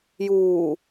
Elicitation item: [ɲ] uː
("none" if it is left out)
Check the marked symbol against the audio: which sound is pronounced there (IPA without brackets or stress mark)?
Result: j